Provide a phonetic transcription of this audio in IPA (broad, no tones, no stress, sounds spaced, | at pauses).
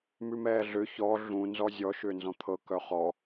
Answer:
m ʉ m ɛː ɮ ʏ ç ɔ ɮ ũ n z ɔ zʲ ɔ ʃ ʏː n z ɔ̃ t̪ʰ ɤ k œ χ ɔ